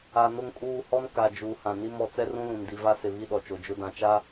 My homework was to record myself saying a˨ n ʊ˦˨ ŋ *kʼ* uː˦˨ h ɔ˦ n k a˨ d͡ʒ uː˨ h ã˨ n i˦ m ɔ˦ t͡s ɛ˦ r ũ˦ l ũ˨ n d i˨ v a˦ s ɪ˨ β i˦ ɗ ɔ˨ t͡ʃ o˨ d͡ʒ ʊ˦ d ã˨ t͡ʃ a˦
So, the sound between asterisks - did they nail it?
yes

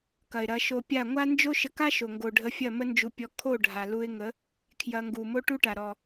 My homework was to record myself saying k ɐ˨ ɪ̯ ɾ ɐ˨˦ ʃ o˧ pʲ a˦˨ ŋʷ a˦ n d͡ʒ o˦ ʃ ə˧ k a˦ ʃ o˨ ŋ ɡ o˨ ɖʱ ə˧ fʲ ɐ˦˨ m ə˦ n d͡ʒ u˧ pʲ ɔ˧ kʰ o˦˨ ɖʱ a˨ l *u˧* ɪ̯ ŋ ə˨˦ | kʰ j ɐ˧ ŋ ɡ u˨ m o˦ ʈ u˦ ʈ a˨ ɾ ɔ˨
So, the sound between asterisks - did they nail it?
yes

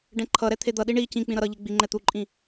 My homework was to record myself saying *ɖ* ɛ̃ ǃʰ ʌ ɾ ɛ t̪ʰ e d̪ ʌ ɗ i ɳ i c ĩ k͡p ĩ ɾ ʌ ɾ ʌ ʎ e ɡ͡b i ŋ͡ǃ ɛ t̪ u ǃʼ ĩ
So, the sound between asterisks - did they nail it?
yes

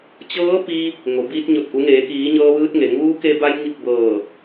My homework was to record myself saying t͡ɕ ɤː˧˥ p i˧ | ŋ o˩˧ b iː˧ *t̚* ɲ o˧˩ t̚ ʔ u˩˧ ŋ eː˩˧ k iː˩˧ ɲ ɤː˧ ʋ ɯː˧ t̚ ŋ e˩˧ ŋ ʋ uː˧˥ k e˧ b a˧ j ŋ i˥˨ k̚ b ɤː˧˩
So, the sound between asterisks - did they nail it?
yes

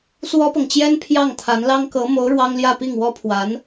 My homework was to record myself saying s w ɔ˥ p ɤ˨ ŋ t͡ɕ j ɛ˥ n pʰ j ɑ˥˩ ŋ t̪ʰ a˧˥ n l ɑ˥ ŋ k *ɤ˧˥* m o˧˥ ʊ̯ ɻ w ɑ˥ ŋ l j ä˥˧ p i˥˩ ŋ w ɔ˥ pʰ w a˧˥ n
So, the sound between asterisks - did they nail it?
yes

